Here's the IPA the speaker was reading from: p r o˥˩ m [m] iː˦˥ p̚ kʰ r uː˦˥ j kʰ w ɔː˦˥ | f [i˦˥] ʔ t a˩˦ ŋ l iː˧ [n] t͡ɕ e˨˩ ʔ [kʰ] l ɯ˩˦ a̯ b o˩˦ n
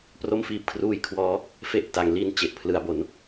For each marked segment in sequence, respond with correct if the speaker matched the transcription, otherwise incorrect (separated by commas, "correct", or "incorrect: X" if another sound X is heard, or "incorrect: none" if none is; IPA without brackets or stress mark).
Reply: incorrect: f, incorrect: e˦˥, correct, incorrect: pʰ